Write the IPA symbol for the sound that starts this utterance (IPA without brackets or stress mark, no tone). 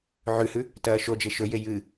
ʕ